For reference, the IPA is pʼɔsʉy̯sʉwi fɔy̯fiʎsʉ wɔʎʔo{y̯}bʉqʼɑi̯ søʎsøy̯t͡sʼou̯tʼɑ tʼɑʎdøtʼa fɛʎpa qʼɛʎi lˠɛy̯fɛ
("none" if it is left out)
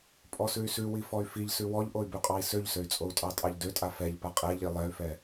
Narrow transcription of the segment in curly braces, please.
y̯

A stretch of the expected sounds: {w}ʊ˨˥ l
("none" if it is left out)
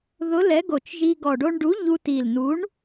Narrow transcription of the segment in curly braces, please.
ð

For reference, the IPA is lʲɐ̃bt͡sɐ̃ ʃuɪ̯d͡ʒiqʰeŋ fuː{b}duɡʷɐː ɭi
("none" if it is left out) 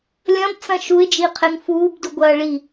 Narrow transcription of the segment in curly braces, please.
b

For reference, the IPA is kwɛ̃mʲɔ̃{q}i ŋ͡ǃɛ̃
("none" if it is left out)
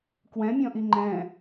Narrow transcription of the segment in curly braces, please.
ʔ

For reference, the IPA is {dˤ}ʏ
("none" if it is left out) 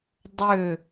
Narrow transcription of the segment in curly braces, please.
dˤ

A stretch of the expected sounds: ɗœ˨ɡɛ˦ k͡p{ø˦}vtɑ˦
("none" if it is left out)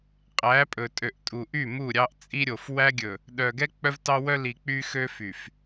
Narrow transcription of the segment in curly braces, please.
œ˦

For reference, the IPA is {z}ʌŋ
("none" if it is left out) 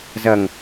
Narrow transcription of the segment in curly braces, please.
z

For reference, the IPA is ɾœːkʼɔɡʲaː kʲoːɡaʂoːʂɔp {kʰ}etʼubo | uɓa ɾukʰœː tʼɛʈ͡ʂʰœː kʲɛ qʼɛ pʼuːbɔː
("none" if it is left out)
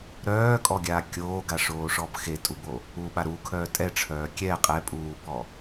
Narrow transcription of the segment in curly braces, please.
x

